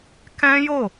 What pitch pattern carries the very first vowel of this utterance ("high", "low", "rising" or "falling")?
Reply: high